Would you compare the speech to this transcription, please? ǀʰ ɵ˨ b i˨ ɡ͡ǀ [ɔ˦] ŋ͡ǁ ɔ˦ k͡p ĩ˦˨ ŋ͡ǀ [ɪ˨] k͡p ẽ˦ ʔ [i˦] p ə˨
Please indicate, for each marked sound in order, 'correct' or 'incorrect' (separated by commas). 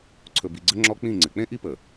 incorrect, correct, correct